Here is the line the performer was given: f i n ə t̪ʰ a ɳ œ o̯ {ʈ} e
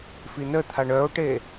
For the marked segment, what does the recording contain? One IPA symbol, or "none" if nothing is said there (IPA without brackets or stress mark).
ʈ